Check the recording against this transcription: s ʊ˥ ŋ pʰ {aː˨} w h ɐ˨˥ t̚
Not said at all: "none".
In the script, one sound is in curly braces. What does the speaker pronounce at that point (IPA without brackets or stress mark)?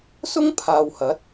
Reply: aː˨